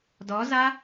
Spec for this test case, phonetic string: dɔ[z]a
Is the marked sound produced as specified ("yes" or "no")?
yes